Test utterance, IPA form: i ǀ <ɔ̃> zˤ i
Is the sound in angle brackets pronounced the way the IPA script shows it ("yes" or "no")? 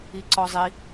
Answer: no